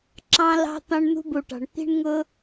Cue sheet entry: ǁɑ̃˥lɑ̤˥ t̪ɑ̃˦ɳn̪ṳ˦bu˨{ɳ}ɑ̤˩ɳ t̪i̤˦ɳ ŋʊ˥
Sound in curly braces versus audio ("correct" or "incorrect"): incorrect